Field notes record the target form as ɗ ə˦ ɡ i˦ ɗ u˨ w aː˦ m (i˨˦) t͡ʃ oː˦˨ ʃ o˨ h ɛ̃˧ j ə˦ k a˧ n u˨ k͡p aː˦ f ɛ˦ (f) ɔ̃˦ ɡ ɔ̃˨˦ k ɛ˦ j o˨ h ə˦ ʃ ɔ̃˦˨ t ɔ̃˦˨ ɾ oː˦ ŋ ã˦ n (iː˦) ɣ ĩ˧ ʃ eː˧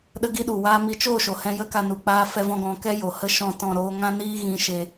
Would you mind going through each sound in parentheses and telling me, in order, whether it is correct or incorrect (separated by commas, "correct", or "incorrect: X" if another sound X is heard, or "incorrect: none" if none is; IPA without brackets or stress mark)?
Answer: correct, incorrect: v, correct